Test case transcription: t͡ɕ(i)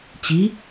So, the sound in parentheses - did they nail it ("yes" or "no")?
yes